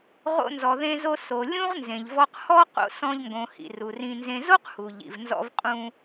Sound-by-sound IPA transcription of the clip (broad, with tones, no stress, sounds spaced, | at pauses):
ʁ o̰˧ n z ɔ˩ ð ẽ˧ z o˧ s o˩ lʲ ũ˥ ʁ n z ẽ˩ ʎ v ɔ˧ q h ɔ˥ q o̰˧ s ɔ̃˧ ʎ ŋ ɡ õ˩ h ḭ˩ r u˩ r ĩ˧ n z ẽ˧ z o˥ q h u˩ ʎ ḭ˩ v n z ɔ̰˧ v qʼ ũ˧